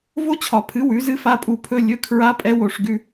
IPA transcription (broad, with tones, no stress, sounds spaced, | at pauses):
v o˦˥ t͡ɕʰ ɒ˨˩˦ pʰ ɨ˩˥ w ʉ˩˥ z ɨ˦˥ f a˧˥˧ pʼ u˦˨ pʰ ɵ˧˥˧ lʲ ɵ˧˥˧ kʰ ɹ a˦˥ pʼ ɛ˦˥ w o˦˨ ʂ ɡ ʉ˧˥˧